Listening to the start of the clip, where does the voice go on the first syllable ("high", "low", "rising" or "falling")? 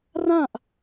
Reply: falling